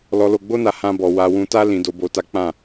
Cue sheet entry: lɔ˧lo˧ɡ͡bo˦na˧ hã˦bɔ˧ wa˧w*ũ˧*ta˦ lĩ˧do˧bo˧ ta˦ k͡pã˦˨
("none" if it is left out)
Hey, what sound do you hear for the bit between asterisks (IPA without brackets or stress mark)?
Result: ũ˧